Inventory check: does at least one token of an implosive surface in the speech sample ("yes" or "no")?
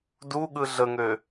yes